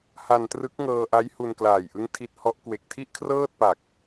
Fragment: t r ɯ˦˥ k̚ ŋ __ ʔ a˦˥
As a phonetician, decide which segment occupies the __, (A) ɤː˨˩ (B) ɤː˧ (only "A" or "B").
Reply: B